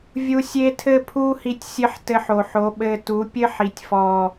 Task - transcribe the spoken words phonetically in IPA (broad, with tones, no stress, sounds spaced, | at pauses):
vʲ u˦ sʲ e˦ tʰ ɘ˦ pʰ u˦ h i˧ tʲ sʲ ɘ˦ ħ t ɘ˧ ħ o˨ ħ o˨˦ ɓ ɘ˧ t u˨˦ pʲ ɘ˦ ħ i˨ tʲ f ɔ˨